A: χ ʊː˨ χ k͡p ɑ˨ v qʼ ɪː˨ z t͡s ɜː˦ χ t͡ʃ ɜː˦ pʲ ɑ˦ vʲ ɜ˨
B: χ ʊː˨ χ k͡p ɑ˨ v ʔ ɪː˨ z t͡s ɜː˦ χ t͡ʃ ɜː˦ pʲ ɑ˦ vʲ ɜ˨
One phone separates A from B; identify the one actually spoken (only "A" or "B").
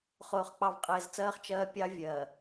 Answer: A